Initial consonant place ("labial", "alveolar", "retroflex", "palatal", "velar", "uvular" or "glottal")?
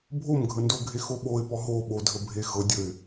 labial